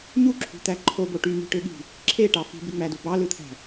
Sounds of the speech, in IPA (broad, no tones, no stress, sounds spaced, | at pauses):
ɲ u ǁʰ ṳ t̪ æ ǃʰ o b o ʈ y m i̤ ʈ ø ɠ i̤ | ǁʰ e ʈ ɑ f i̤ b y ŋ͡m æ d u b ɑ l ɯ t̪ʰ æ̤